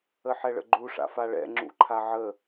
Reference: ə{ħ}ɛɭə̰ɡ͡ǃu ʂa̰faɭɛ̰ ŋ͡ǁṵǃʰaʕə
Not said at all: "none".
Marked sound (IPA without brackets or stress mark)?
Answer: ħ